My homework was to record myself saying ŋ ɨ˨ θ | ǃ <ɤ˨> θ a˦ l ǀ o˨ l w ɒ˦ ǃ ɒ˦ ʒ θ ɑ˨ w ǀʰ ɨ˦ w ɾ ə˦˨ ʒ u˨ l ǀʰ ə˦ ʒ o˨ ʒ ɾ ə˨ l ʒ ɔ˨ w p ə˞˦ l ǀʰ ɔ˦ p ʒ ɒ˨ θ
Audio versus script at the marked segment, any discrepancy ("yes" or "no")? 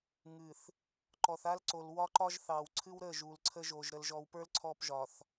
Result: yes